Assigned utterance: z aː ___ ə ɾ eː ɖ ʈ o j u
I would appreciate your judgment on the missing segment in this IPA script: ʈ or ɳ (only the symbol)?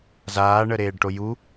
ɳ